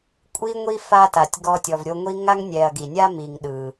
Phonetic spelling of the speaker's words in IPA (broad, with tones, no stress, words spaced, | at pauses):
kʷʼi˥ŋʷi˥ fa˦ta˩tʲ ɡɔ˦tʲɔ˨v ɾʲo˦ŋʷi˥ ŋa˥ŋnʲɛ˨ɐ̯ɡi˩nʲa˥ mi˨ŋ ɗɯ˩